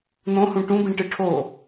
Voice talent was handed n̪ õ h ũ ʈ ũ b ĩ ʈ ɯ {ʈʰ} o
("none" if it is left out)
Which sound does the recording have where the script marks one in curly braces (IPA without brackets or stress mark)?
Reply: ʈʰ